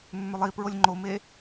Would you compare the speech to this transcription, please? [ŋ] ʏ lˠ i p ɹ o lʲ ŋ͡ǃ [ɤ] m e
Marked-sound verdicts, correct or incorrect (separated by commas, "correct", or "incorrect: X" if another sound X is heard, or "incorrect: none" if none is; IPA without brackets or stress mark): incorrect: mː, incorrect: o